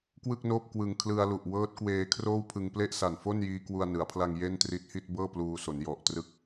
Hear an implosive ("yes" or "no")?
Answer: no